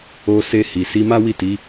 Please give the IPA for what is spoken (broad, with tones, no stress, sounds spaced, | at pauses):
o˧ s e˧ h i˨ s i˧ m a˦ w i˦˨ t i˨˦